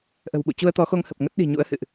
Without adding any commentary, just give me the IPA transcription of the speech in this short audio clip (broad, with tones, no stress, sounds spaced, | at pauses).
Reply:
ʔ ə̤˨˩ w ɓ ṵ˧˨ t͡ɕ u˧ ə̯ t̪ ɔ˨˦ x o˧ ŋ h ə˨˩ p̚ ŋ ə˦˥ t̚ ɗ i̤˨˩ ɲ ṵ˧˥ ə̯ h ɨ̰˧˨ ʔ